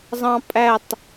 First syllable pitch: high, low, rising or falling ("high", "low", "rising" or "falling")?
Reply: high